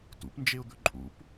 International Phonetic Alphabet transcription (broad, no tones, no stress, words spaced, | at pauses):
tṵpnd͡ʒeʊ̯d̪ɵ ǃʼṵp